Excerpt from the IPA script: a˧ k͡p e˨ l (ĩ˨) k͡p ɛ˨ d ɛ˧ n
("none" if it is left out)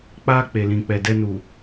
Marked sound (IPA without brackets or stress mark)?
ĩ˨